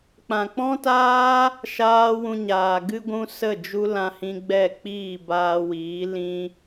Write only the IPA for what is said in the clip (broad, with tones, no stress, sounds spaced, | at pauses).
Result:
k͡p ã˨ k͡p ɔ̃˦ t aː˦ | ʃ aː˦ w ũ˧ ɲ aː˨ ɡ ɨ˧ ɡʷ ũ˧ s ə˦˨ d͡ʒ u˦ l ã˧ h ĩ˧ ɡ͡b ɛ˦˨ k͡p iː˦˨ b aː˧ w iː˨˦ l ĩ˦